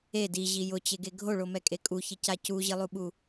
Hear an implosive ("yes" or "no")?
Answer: yes